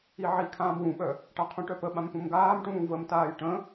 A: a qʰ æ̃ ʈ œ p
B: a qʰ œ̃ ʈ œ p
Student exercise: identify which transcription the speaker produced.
B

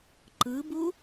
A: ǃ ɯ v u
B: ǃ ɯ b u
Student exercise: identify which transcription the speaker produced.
B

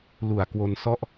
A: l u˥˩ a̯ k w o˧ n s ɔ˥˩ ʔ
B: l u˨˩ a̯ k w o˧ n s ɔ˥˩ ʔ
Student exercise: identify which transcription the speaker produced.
B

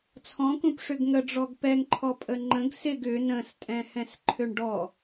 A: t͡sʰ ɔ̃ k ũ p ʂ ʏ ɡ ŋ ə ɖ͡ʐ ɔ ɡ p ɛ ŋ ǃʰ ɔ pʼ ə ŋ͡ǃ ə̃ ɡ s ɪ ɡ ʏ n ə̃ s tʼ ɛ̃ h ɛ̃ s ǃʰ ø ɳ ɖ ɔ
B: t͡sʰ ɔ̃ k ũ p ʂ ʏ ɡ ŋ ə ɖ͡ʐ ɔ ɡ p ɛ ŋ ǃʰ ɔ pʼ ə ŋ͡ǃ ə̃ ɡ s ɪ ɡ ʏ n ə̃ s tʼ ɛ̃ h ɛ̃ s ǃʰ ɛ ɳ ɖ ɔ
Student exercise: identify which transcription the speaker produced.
A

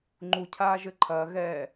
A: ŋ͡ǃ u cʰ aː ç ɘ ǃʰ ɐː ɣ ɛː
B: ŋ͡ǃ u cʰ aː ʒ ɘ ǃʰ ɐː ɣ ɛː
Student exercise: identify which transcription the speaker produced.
B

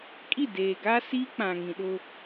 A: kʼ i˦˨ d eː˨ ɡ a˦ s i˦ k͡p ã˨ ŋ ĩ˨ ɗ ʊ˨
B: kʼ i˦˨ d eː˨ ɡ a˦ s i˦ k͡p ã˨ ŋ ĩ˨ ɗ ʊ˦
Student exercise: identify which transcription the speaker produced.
B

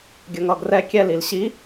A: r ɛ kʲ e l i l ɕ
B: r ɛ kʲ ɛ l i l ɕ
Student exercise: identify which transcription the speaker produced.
B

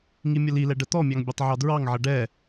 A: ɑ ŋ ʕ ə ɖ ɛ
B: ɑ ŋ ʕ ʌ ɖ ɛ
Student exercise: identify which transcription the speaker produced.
B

